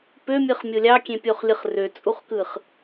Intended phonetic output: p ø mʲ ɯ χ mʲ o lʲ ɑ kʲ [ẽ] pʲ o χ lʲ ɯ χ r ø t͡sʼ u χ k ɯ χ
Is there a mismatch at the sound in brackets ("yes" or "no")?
no